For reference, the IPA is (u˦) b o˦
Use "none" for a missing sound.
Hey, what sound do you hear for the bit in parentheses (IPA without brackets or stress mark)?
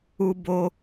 u˦